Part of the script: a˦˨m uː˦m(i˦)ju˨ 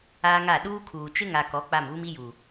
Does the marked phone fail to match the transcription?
no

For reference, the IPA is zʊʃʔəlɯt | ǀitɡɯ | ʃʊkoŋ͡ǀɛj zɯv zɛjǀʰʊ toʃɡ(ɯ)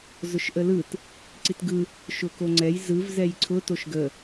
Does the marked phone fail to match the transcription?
yes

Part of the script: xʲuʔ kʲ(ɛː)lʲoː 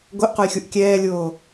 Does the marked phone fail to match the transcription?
no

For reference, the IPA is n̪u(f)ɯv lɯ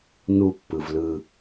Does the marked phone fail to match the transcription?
yes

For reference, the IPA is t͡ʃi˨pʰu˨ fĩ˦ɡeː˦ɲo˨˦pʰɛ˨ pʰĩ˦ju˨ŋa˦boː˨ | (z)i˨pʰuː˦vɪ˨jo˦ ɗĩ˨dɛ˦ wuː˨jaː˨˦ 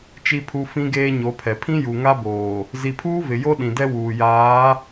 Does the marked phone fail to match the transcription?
no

